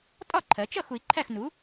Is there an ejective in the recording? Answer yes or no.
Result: yes